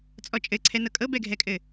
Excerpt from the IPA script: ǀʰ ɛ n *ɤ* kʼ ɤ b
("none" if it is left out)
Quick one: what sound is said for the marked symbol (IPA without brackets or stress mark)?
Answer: ɤ